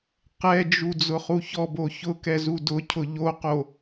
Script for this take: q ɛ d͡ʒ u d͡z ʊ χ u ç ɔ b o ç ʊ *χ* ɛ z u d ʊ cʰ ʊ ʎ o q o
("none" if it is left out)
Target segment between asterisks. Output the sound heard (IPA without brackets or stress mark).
k